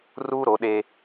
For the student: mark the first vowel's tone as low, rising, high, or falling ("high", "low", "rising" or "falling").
high